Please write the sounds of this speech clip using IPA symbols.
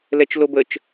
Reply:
lɛt͡ʃlobət͡ʃ

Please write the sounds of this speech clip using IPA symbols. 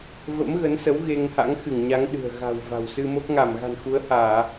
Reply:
və̰˧˥mɣə˨˦nsə˨˦w ɣe˧ŋha̰˧˥ŋxɨ˧˩ŋɲa˨˦ŋ ɗɨ̤˨˩ə̯ɣa̤˨˩w va̤˨˩wsɨ˧mo˦˥k̚ ŋa˧˩mɣa̤˨˩nxu˨˦ə̯ haː˧˩˨

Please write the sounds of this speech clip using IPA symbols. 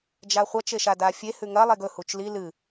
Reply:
d͡ʒaχʷɐ t͡ʃeʃadafʲe hʉŋɐ lˠeɡɵ hut͡ʃli lɨ

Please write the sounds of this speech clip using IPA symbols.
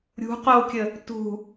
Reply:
ɾʲṳ qokʲə | tṳ

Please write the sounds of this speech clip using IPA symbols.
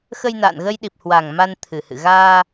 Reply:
xə˧jna̰ː˧˨nɣə˧jɗi˨˩p̚ hwa˨˩ŋma˧n t̪ʰɨ˨˩hɨ̰˧˨ ɣaː˧

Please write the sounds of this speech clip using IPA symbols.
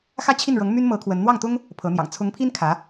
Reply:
xä˥˧t͡ɕʰi˥˩nɻɤ˧˥ŋ my˥nmɤ˧˥ kʰwə˧˥n n̪wɑ˥˩ŋt̪ʊ˥ŋ | pʰɤ˧˥n̪jɑ̰˨˩ŋ t͡sʰʊ˧˥ŋpʰi˥n kʰä˧˥

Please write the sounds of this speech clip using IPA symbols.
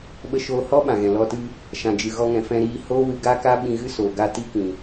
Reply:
ɓə˧ʃoː˧hɔ˦ ɓã˨ɣɛ̃˨lɔ˧tɨ˦ | ʃã˨d͡ʒɨ˨ɣɔ˧ŋɛ̃˨ fɛ̃˧ɾiː˧ hoː˦wɨ˧ɡa˦ka˦ ɓĩ˧ɣɨ˦soː˨ ɡa˧ti˦kĩ˨

